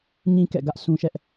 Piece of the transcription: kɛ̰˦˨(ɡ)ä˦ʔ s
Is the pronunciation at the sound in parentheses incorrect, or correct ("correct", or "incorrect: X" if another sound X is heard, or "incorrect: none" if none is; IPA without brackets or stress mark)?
correct